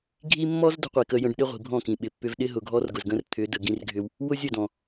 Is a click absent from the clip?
yes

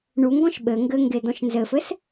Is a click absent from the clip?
yes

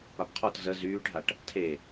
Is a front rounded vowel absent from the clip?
no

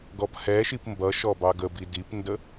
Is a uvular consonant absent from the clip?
yes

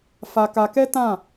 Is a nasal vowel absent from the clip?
no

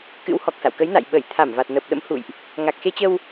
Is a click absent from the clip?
yes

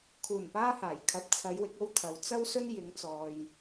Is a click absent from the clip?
yes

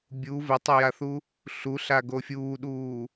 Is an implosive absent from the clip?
no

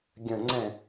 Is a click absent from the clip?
no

